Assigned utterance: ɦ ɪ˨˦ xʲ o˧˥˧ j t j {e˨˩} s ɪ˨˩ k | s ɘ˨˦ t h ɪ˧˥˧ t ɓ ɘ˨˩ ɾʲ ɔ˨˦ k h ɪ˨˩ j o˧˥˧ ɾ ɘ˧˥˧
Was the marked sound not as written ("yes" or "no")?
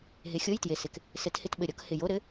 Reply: no